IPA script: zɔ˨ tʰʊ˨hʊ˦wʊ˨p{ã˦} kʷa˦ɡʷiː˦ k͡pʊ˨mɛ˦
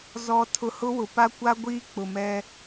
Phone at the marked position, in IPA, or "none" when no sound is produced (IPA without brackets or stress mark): a˦